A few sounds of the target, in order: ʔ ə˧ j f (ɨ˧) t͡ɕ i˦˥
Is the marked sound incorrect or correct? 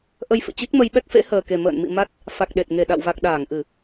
incorrect: ɨ̰˧˨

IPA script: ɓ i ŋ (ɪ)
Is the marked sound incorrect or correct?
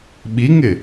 correct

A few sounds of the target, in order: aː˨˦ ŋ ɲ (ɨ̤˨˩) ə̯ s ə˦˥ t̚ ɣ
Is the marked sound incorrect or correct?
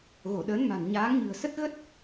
correct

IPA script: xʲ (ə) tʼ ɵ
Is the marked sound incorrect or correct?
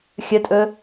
correct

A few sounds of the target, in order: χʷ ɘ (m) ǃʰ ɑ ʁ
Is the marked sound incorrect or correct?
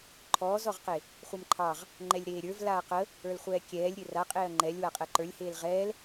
correct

